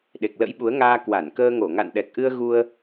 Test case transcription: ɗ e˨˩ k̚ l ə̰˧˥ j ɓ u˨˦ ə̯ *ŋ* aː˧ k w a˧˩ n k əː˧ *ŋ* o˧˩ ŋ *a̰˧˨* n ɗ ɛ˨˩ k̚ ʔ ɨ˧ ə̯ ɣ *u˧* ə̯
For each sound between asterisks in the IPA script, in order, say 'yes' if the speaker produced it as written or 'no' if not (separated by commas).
yes, yes, yes, yes